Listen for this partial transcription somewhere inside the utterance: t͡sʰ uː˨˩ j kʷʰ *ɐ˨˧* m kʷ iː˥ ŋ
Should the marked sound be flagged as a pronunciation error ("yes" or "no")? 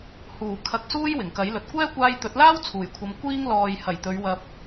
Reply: no